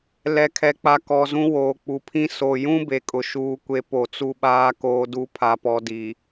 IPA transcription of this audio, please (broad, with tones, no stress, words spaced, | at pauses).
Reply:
lɛ˨kʰɛ˨k͡pa˨ kɔ˨zũ˦ woː˨k͡pu˨pʰĩ˦ so˨jũ˦ be˨kʼʊ˨ʃuː˦kʷe˦ po˨t͡su˦ɓaː˦ koː˦du˦ pʰa˨pɔ˨di˨